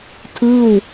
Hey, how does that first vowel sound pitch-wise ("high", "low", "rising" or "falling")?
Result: falling